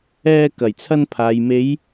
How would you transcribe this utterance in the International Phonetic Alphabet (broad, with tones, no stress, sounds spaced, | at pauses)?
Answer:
ɛː˧ k ɐ˨˩ j t͡sʰ ɐ˧ n pʰ aː˨ j m e˨˧ j